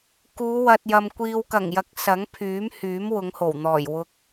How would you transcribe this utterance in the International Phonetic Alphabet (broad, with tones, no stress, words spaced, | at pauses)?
kuː˨˧wɐ˨t̚jɐ˨m kʷiː˨wkɐ˨˩ŋjɐ˨˥k̚ sɐ˨˥ŋpʰyː˨˥m hyː˨˥mwʊ˨˧ŋho˨˩wn̪ɔː˨˩j wʊ˨k̚